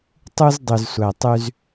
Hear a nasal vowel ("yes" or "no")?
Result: no